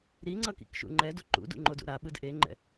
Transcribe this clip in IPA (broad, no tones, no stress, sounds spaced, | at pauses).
ɾ i ŋ͡ǀ ʌ k ḭ k ʃ ṵ ŋ͡ǃ ɛ d o ǃ ṵ d ṵ ŋ͡ǃ o d ṵ ɾ a ɓ ɯ d ʔ e ŋ͡ǃ ɛ̰